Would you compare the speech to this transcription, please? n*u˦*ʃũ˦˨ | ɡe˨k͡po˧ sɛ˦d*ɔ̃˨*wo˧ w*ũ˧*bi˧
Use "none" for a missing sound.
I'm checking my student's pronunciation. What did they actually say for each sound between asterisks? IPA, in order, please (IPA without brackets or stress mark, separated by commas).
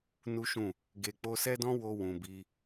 u˦, ɔ̃˦, ũ˨